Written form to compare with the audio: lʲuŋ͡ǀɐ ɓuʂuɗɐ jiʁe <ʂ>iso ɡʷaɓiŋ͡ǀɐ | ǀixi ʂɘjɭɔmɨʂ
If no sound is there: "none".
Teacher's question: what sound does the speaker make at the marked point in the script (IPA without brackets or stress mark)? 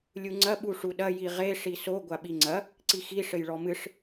ʂ